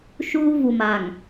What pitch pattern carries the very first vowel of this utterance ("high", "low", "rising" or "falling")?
high